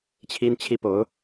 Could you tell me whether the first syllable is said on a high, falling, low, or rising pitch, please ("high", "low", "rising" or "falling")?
high